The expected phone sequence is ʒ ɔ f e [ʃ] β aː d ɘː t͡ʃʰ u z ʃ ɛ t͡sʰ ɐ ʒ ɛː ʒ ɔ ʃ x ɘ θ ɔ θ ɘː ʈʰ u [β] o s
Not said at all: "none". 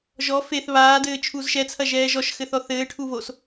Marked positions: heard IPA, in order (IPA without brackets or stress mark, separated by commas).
θ, β